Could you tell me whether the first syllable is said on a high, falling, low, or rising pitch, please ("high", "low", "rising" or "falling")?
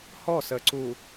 falling